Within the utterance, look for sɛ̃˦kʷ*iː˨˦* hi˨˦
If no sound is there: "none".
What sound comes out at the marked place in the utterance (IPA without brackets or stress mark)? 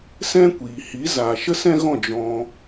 iː˨